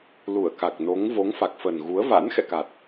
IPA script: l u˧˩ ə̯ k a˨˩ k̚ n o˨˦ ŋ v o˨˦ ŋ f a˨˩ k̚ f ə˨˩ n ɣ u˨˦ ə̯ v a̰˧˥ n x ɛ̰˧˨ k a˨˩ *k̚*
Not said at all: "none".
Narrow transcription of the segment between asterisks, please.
t̚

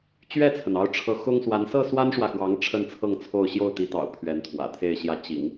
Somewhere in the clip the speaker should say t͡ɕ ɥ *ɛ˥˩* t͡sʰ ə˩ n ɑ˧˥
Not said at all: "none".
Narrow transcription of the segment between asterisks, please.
ɛ˥˩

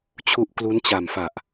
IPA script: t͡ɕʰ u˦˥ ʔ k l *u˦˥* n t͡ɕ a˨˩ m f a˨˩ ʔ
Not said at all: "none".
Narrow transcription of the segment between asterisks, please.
u˦˥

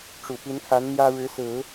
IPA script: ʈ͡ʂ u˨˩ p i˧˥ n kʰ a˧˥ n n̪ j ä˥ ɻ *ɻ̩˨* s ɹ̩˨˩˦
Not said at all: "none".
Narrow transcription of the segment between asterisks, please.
ɻ̩˧˥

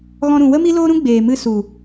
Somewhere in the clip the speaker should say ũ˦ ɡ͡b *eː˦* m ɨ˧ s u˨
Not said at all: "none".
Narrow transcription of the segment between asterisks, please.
eː˨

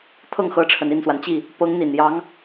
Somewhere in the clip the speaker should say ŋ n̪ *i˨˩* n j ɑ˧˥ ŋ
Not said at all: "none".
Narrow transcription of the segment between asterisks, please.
i˨˩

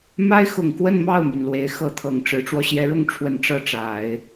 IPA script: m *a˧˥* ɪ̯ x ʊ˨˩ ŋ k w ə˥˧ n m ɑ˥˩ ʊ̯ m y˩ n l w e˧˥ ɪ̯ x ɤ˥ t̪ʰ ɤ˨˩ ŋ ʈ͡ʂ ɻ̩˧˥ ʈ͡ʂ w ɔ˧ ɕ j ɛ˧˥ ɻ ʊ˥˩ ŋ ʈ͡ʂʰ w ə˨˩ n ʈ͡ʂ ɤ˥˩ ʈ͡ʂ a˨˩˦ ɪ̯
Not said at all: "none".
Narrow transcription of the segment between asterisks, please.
a˥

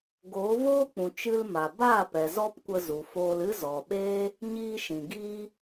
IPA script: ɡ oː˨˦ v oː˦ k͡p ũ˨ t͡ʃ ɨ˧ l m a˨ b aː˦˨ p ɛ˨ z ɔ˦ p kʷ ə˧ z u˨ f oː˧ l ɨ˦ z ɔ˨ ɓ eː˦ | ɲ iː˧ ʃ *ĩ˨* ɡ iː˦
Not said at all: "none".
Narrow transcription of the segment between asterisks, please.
ĩ˨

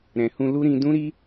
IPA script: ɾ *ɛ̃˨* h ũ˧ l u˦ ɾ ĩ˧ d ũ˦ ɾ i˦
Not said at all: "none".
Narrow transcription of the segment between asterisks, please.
ɛ̃˨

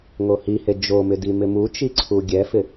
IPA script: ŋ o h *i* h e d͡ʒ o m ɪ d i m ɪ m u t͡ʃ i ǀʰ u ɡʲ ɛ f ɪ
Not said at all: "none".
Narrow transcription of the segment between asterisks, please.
i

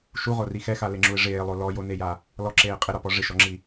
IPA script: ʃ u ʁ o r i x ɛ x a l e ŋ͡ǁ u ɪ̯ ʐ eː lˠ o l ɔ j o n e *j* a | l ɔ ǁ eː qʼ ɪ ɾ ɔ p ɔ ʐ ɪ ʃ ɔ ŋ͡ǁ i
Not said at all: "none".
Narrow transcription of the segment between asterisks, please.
j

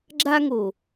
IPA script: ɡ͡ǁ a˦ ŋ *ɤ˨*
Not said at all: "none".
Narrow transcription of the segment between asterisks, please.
o˨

